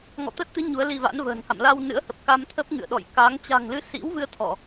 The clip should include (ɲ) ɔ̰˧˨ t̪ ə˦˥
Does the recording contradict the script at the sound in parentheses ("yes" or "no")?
yes